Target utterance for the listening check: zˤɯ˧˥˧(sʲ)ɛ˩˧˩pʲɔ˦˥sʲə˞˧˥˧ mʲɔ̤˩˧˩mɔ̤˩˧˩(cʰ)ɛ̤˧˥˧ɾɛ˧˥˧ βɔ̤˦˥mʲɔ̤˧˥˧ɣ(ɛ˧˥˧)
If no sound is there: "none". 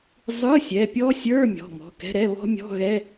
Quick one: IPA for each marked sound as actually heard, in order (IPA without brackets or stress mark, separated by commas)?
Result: sʲ, k, ɛ˧˥˧